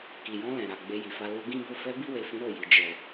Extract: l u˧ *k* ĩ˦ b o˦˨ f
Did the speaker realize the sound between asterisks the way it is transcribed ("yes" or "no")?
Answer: no